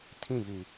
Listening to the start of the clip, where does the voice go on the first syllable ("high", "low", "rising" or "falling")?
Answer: falling